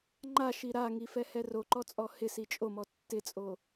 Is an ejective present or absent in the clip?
present